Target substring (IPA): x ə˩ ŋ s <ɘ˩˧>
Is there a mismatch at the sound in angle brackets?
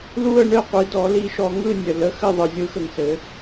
no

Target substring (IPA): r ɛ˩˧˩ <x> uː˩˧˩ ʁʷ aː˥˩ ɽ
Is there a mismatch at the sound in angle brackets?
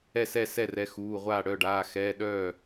no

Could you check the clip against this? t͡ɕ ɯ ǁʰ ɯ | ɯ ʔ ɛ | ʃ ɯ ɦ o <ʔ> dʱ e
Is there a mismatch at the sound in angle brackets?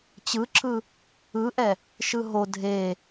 yes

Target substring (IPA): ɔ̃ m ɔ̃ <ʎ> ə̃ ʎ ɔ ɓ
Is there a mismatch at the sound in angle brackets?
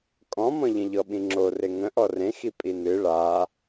no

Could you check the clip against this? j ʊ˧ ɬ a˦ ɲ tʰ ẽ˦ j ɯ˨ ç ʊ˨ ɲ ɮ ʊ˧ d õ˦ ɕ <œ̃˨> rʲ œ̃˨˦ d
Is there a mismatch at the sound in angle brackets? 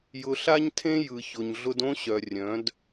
yes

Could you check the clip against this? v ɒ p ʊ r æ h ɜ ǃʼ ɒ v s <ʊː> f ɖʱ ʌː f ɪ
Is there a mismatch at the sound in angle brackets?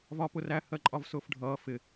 no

